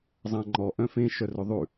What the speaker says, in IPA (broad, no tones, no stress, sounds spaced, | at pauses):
zˤ æ̃ ŋ͡ǃ ɔ ʔ œ̃ f ẽ ʃ œ r ɵ ðˤ ʉ